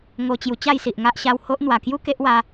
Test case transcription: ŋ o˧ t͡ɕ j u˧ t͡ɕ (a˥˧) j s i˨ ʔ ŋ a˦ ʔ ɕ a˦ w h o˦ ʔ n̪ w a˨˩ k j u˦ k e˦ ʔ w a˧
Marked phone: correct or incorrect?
correct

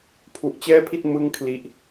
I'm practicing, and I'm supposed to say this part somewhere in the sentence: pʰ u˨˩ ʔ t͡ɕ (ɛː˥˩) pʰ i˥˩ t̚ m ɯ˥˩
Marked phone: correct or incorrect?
correct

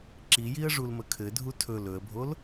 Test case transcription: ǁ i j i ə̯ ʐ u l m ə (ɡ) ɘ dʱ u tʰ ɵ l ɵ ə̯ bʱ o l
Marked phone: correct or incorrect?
incorrect: kʰ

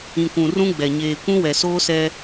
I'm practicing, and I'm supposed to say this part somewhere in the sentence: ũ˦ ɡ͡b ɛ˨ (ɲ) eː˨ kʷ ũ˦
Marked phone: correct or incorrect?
correct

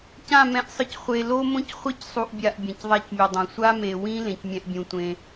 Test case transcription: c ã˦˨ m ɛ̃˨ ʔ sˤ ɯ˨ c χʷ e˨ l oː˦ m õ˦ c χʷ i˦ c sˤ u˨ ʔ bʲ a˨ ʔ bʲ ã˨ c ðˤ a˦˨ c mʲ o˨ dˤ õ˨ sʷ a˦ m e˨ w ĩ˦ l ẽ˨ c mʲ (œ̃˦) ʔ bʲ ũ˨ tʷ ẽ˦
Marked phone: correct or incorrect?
incorrect: ɛ̃˦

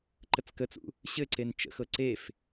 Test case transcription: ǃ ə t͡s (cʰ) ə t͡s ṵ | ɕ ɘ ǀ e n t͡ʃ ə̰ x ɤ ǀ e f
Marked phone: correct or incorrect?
incorrect: k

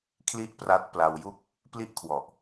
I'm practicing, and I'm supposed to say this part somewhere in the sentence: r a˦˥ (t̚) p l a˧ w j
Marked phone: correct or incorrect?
correct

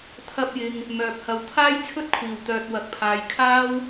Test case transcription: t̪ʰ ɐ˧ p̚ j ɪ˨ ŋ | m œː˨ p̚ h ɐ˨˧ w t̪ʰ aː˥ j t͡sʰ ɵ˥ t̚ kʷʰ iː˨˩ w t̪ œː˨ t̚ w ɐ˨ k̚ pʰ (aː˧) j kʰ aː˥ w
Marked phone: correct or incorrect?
incorrect: aː˨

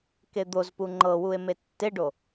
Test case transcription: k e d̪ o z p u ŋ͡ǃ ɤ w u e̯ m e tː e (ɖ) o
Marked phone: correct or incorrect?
correct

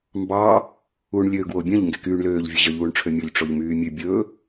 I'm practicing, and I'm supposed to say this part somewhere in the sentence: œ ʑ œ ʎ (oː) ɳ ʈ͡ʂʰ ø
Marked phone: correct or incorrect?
incorrect: uː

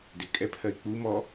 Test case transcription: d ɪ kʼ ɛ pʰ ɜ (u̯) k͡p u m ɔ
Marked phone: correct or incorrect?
incorrect: i̯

